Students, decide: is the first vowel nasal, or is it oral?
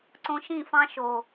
nasal